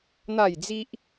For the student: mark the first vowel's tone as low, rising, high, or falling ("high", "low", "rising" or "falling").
falling